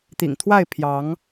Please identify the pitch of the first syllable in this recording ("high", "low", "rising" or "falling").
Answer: low